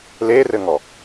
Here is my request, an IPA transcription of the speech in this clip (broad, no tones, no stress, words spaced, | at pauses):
lerɘŋɔ